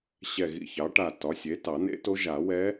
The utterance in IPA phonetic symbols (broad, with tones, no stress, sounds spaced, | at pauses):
ɕ ɛ˧˩ ɣ ḭ˧˩ ç ɑ˩˥ ʈ a˧˩ t ɒ˩˥ sʲ e˩˥ t ɑ˨˩˦ n ḛ˧˥ t o˧˥ ʒ a˨˩˦ w ɛ˧˥